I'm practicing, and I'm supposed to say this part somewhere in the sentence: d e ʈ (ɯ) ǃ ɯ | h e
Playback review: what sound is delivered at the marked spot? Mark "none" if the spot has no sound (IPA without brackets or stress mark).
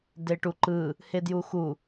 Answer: u